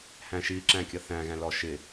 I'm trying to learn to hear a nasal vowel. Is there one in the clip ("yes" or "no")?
yes